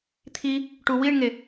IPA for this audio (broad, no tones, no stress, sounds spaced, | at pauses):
t̪ʰ i | ʈ u w i ɳ ŋ e